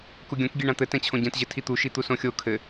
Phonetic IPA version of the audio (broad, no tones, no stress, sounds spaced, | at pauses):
k u ɡʲ õ k ɡʲ e ɳ ã t̪ ɘ t ɛ̃ t͡ɕʰ õ ɟ ɛ̃ t ʑ ɘ tʰ i t̪ u ʃ i t̪ u s õ xʲ o kʰ ɘ